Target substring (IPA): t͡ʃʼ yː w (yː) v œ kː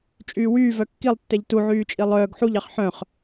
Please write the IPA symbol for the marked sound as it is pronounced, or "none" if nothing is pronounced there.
yː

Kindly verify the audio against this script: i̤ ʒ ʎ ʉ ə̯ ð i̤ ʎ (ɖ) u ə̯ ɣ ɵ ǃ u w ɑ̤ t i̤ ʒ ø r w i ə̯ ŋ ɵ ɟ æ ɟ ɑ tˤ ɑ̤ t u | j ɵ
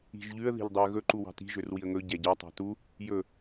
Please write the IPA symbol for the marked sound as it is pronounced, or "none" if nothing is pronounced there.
dˤ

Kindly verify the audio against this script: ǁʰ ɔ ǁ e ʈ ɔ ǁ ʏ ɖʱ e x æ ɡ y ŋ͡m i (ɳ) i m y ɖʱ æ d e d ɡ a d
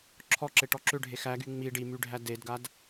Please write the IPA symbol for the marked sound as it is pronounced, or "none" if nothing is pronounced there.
ɖ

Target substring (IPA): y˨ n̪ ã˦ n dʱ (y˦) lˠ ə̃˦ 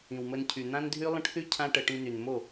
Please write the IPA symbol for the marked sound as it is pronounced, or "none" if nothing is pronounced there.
y˦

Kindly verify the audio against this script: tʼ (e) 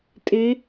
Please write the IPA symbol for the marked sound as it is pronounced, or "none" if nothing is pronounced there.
e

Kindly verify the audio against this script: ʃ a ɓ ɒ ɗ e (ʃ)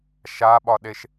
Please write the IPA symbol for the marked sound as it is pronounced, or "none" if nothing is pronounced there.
ʃ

